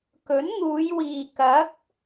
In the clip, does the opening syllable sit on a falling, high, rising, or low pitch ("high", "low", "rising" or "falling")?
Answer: rising